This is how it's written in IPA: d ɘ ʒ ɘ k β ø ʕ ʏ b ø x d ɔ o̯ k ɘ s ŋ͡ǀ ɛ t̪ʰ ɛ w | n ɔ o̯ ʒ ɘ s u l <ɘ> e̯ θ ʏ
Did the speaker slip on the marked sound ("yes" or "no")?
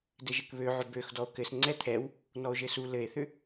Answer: no